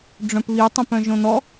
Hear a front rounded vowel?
yes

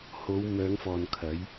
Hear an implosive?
no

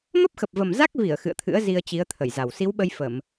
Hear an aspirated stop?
yes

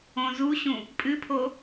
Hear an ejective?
yes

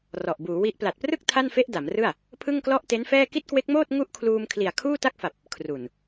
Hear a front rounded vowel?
no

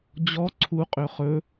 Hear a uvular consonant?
yes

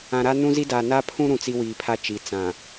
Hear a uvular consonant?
no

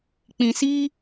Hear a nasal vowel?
yes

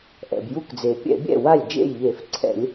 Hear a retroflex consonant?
no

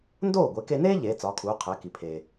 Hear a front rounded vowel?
no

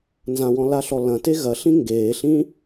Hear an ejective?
no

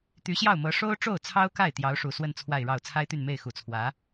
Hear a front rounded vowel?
yes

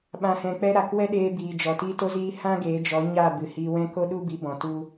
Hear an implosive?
yes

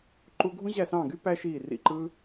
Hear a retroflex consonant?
no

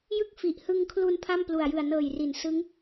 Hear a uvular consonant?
no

